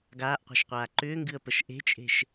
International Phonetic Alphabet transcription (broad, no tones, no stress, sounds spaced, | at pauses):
ɡ aː ʔ qʷ ɛ̤ ʃ qʷ aː ǃ ʏː ŋ ɡ ɨ ə̯ p ə ʃ ʔ e̤ t͡ʃʼ e̤ ʃ